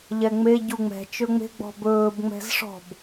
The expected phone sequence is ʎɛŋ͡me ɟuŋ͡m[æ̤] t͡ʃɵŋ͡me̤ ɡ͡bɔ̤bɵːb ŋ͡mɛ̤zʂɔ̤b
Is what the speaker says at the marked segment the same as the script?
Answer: no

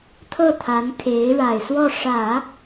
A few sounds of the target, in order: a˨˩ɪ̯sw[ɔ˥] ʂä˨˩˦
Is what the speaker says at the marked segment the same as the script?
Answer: no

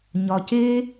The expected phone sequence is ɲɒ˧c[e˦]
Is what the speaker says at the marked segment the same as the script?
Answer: yes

